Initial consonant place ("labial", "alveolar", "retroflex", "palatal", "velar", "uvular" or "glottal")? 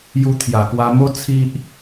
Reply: palatal